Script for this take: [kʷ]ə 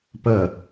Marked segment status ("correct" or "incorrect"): incorrect